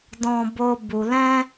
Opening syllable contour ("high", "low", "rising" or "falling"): high